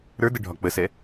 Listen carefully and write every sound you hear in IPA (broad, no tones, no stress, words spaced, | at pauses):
ɾə˞də ɖʱɒk͡pəsɛ